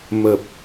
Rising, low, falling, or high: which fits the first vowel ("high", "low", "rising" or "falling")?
low